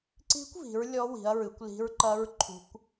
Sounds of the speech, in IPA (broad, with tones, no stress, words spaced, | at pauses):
ǀi̤˦˥kʷvi̤˨˦ɹ lʲɔ˦˥wi̤˨˦ɐ̯ɹɨ˨˦kʷli̤˦˥ɹ ǃɐ˦˥ɹ ǃʰṳ˦˥kʷ